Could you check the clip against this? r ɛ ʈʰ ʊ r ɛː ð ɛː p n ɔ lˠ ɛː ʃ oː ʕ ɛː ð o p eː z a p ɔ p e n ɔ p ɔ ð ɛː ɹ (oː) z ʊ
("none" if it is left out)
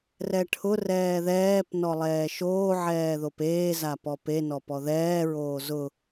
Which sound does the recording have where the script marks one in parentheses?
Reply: oː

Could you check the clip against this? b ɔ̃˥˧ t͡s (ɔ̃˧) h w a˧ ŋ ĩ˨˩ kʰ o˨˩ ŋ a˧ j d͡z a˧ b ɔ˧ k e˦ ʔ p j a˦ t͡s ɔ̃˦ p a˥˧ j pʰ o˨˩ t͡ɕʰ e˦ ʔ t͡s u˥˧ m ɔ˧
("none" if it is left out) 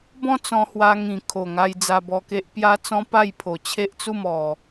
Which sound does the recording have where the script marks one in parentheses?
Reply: ɔ̃˧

